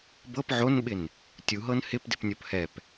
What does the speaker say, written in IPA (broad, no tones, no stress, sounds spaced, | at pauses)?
b ɤ p ʕ o n ɓ ɪ n | tʲ u ɦ ɤ n h ɪ p d ɪ p nʲ o p h ɛ p